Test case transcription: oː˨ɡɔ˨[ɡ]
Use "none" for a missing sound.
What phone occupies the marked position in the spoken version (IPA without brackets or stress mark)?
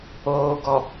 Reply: none